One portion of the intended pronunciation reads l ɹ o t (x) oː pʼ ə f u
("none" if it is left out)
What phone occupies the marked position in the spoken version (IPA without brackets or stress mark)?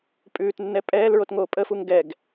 ŋ